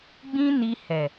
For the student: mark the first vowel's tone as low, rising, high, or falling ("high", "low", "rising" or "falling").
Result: high